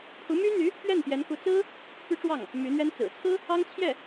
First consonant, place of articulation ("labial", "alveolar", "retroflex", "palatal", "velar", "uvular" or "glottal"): labial